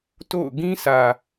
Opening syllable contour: falling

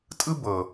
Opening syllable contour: high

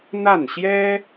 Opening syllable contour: falling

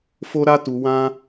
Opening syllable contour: high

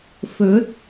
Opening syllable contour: rising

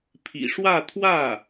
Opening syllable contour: low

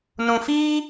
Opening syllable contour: low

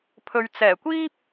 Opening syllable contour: low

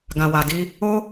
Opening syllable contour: low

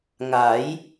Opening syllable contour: rising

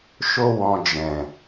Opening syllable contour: high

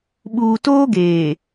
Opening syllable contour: low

